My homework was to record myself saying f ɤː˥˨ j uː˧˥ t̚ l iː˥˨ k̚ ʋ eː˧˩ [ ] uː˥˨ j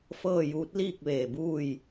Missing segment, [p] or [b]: b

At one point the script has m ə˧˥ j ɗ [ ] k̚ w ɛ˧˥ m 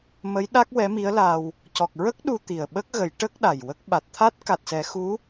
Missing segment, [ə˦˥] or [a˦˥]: a˦˥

